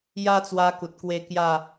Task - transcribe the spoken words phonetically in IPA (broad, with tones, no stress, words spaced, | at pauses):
ja˦t͡swa˧ ku˨t̚kwe˥˧kja˥˧